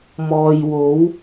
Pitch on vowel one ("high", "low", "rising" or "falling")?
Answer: low